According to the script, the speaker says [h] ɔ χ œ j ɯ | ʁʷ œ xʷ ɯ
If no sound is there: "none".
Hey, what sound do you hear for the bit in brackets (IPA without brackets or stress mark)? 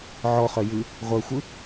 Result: ʕ